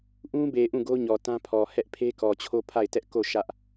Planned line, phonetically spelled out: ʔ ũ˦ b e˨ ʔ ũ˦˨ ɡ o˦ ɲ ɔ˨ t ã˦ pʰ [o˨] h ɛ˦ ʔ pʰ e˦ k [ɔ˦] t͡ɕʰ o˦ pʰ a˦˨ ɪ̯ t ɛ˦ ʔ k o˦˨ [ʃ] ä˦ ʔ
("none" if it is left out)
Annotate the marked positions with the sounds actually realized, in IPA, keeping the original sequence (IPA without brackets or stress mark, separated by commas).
ɔ˨, ɔ˨, ʃ